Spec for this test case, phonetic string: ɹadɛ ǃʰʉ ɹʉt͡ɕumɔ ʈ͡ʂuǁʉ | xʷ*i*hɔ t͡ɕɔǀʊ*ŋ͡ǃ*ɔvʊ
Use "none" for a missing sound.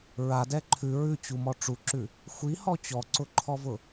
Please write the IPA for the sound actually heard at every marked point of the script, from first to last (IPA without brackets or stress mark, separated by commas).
i, ǃʰ